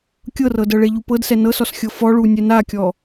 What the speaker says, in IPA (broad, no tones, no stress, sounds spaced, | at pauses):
kʲ ɤ r ɤ d ɤ ɭ e ʎ u p ɤ d s ɛ n ɤ s ɔ s xʲ ɤ f ɔ ɭ u nʲ ɛ n a kʲ ɔ